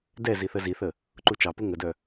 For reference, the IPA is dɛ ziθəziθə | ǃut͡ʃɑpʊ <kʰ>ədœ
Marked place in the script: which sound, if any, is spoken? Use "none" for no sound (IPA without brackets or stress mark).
ŋ